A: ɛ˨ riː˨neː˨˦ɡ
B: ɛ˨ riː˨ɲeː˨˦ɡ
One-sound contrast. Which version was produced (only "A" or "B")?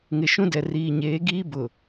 B